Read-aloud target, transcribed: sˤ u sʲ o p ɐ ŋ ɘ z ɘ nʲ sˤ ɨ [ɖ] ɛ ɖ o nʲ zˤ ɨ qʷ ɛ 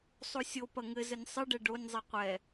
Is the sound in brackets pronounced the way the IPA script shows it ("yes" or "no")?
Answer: yes